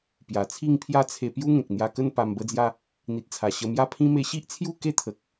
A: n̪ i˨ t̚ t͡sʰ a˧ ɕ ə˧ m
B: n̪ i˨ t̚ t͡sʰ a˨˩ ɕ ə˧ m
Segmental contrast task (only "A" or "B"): B